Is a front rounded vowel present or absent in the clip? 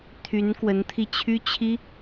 present